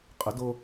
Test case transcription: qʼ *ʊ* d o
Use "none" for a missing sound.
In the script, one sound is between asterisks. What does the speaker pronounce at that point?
ʊ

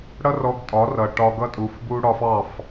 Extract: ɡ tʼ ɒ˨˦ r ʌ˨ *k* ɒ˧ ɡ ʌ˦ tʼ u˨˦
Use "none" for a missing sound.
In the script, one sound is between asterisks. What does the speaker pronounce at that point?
ʈ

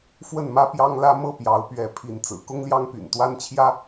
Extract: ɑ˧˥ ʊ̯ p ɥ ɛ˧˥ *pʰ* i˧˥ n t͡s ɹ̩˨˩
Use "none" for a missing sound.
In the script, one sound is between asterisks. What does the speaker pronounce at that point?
pʰ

